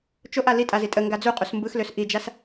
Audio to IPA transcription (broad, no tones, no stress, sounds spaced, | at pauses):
t͡ʃ o ʔ a l i tʼ a z i tʼ ə ŋ ɡ a d͡z u qʼ u s m b ɯ x l ø s ʔ i d͡ʒ a s